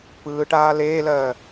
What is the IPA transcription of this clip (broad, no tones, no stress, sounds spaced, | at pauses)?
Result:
p ɯː ʈ aː l eː l ɜː